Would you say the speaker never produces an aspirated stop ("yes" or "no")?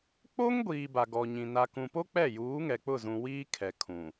no